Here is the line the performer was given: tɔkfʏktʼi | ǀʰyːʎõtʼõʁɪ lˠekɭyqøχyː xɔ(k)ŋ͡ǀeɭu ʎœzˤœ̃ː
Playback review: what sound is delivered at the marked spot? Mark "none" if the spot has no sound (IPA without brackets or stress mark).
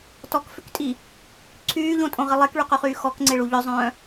k